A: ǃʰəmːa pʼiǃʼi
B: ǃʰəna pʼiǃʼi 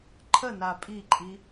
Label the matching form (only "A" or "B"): B